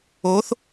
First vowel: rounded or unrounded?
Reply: rounded